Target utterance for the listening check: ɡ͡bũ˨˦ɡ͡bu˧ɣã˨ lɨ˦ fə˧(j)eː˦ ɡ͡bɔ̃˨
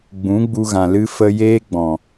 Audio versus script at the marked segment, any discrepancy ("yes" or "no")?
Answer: no